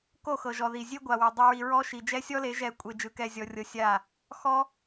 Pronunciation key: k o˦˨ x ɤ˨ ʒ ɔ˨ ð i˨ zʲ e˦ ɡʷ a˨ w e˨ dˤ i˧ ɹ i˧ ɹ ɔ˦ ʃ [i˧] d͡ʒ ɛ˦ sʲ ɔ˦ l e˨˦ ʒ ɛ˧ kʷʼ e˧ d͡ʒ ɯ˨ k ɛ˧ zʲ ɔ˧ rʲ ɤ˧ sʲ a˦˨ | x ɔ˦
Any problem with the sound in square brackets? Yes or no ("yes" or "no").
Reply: yes